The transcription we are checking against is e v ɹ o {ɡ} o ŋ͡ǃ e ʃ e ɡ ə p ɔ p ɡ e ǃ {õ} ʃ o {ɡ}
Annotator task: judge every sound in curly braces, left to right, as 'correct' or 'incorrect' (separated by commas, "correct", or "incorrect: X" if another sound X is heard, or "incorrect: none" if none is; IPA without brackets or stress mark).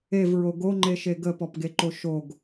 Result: correct, incorrect: o, correct